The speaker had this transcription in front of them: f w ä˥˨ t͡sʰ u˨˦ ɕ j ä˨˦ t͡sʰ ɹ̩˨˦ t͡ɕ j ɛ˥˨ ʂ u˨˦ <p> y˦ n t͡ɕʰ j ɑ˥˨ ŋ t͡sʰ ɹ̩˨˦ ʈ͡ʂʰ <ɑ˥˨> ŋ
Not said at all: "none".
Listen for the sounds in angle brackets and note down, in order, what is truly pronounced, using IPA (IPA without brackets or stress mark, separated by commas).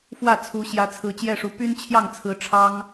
p, ɑ˦